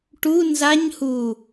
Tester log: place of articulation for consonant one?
retroflex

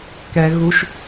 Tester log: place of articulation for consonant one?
velar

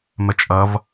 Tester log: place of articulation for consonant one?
labial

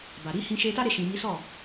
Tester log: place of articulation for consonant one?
labial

